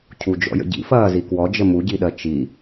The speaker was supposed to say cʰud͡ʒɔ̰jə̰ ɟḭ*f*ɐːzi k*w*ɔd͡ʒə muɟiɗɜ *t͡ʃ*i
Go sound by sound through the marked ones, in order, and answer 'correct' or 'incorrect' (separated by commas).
correct, correct, correct